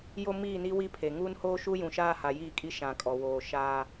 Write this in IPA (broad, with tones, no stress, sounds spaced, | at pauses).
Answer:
j o˦ m iː˦˨ n i˦ w i˦ pʰ e˨ ŋ uː˦ n h oː˦ ʃ u˦ j ũ˨ ʃ aː˦ h a˨ j iː˦˨ kʼ i˦ ʃ ã˨ kʼ ɔ˨ w oː˨ ʃ aː˦